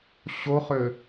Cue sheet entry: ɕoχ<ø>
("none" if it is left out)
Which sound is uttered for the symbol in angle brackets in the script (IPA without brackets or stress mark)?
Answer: ø